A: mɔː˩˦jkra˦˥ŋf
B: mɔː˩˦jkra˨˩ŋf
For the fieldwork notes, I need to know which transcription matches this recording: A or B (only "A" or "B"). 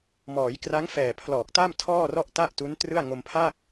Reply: A